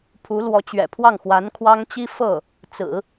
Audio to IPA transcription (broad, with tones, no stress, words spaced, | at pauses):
pʰu˧˥ lwɔ˧˥t͡ɕɥɛ̰˨˩pʰwɑ˥˩ŋxwa˧˥n kʰwɑ˥ŋ t͡ɕi˥fɤ˥˩ | t͡sɹ̩˨˩˦